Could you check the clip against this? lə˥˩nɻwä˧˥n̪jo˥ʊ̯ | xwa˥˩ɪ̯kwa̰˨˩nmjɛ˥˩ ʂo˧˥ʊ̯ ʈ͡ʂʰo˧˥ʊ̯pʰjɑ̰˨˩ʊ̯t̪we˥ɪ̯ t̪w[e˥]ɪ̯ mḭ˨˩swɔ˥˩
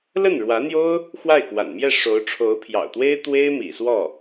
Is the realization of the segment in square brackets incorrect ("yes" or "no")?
no